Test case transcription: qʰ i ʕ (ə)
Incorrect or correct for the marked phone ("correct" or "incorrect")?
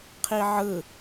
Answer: incorrect